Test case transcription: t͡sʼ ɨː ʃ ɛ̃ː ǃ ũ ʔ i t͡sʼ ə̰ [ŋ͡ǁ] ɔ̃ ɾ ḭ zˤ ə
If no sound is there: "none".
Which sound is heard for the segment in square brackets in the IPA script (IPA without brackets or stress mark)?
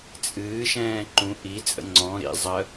ŋ͡ǀ